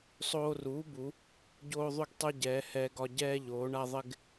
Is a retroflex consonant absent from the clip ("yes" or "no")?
no